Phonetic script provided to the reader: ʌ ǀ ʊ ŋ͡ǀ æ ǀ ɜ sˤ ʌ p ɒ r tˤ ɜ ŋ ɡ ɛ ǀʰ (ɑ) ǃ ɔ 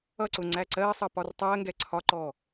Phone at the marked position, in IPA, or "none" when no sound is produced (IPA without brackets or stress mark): ɒ